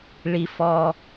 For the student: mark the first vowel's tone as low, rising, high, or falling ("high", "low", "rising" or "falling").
high